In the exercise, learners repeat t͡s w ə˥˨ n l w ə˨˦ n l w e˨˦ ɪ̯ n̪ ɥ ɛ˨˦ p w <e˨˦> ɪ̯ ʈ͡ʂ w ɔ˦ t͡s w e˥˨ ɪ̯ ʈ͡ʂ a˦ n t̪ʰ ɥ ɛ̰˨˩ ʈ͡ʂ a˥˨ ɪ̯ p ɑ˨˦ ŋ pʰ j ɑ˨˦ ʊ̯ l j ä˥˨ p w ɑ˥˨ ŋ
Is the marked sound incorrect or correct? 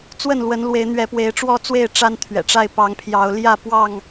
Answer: correct